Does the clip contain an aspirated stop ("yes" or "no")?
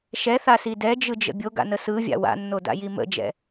no